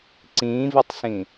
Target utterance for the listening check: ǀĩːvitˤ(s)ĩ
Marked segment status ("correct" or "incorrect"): correct